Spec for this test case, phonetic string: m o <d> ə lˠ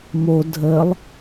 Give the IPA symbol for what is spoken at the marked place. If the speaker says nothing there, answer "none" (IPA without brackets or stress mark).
dʱ